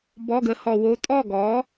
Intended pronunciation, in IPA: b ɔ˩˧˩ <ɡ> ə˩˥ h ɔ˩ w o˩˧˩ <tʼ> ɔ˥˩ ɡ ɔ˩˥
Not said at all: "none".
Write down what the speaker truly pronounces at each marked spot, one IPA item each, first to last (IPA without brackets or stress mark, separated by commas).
ɡ, tʼ